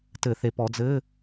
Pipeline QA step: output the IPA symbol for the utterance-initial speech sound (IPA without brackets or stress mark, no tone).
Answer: t